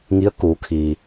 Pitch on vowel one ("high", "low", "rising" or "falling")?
rising